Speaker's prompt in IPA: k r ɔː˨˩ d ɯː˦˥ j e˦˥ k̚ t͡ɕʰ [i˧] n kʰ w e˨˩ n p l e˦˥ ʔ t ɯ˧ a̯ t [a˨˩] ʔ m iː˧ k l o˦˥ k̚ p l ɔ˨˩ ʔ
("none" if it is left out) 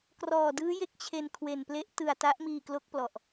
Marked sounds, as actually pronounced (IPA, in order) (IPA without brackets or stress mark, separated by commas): e˧, a˦˥